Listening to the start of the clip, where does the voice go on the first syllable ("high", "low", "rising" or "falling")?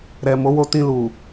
low